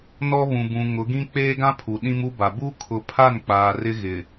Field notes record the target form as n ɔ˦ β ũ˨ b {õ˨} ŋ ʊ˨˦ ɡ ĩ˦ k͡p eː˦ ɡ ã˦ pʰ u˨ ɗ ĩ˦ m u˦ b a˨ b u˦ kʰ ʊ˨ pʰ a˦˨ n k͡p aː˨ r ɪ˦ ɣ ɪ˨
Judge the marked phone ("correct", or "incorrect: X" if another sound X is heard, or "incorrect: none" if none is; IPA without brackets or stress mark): incorrect: ũ˨